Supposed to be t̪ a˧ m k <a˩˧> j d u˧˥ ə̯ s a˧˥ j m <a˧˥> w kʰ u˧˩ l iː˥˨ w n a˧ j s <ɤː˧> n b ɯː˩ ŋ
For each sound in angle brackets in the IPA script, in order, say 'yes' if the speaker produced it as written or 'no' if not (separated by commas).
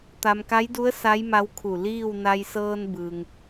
no, yes, yes